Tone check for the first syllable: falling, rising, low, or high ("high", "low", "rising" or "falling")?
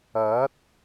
rising